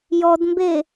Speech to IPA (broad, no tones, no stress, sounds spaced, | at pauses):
j ɔ d m b e